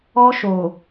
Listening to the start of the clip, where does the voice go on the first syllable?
high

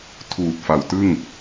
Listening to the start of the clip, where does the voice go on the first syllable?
low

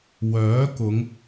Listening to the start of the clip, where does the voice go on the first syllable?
rising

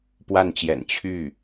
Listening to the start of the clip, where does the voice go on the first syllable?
falling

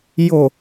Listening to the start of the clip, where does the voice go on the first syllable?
low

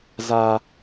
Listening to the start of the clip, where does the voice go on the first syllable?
high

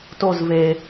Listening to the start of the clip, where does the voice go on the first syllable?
falling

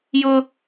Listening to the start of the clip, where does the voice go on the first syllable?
high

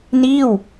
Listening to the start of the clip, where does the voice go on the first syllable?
falling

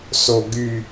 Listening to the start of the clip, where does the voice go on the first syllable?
low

